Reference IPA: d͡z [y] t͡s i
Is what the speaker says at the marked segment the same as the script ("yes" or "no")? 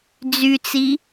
yes